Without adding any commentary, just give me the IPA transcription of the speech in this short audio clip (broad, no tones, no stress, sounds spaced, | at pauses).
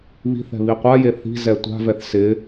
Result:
β i̤ θ ɛ̤ β i qʷ a j e θ i̤ z ɛ tʷ a̤ v ɛ θ s ɪ